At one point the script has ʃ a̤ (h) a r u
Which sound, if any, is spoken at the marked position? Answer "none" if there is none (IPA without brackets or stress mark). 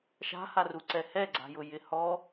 h